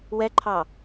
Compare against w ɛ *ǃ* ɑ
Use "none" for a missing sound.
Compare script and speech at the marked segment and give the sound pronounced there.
ǃʰ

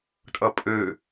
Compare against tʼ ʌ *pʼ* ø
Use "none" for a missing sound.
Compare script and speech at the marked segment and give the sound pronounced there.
pʼ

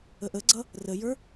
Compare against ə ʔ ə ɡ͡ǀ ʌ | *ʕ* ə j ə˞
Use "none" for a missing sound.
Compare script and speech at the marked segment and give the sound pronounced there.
r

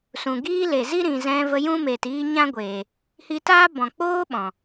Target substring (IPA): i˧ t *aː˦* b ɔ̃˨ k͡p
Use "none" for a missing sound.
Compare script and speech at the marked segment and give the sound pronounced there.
aː˦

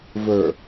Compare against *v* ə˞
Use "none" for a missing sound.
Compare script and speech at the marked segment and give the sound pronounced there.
v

